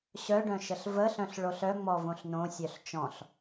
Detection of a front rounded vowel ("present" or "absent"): present